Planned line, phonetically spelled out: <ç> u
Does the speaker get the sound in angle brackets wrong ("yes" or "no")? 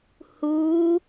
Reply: yes